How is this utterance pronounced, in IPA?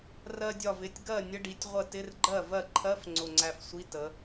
rɜ˧dʲɒ˧˩vɪ˩˧˩tʲ ɡɜ˥˩nʲə˧˥˧ɖi˩˧tʲ ʁʷə˥˩ tɪ˧˥˧rɡ͡ǃɜ˥˩ vɜ˥˩ ǃʰɜ˧˥˧f ŋ͡ǀʊ˧˩ŋ͡ǀæ˧fsʷi˧˥˧ tə˩˧

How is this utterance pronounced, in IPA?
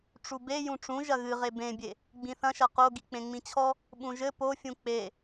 ʈ͡ʂube jũʈ͡ʂũ ʒɐɣɨʁe bẽbʲe | ɡ͡bĩθɐ̃ʃɐ qo ɡik͡pẽŋ͡mĩt͡ɕʰɔ | ɓũʒɘ pofʲũ k͡pe

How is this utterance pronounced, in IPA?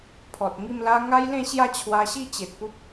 pʰɔ˨t̚ŋi˥˧mla˦ ŋa˦jlẽ˥˧ɕja˥˧ t͡ɕʰwa˧ɕi˥˧ t͡ɕe˨t̚pu˦p̚

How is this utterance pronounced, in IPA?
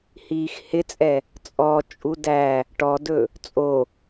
hiːxhɪt͡sʼɛ | t͡sʼɔ t͡ʃʼudæ | ʈɔdɵ | t͡sʼo

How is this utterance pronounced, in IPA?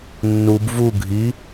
nːub vu ɡʱi

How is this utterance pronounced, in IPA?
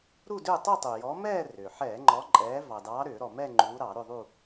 ɾu˥˧dʏː˥˧ tˤu˥˧tˤu˩ jɔ˨˦mɛː˥˧ rʏː˩ ħɛː˧˩˧ŋ͡ǃɔ˨˦ǃʼɛː˨˦ vɑ˩dɑː˨˦ ɾʏː˧˩˧ ɾɔ˩mɛ˥˧ ŋ͡ǃuː˨˦ɾɑ˧˩˧ ɾʏ˥˧ðˤu˥˧

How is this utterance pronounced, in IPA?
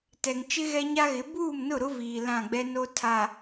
tɛ˨ŋt͡ʃɪ˦ɣɛ˦ ɲa˦ɣɪ˨˦ buː˦˨mnʊ˦˨ɾʊ˦ viː˨ lã˦˨ɡ͡bɛ˦no˦ tʰa˨

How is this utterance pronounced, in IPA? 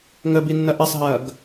ŋəbinːɐ ʔɐsˤɦɐːɡ

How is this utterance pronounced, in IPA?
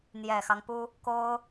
n̪jɛ˨˩xɑ˦ŋpu˥ | ko˥ʊ̯

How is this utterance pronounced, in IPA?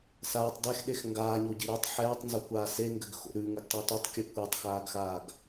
saːtˤ dɛxɗex ŋɡaːɲoɟi ɾʉtˤ ħɛːtˤnzokʷaː seŋɡɘɡxo̰ ɾʉŋɘɡtˤi tʉtˤkʲʉ kʷɛtˤxaːɡxaːɡ

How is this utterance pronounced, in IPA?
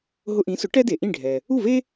ɦʊ˧ʔĩ˩˥sʊ˩˥ ʈɛ˥de˩ʔĩ˥˩ɖʱɛ˩ | u˥˩ve˥

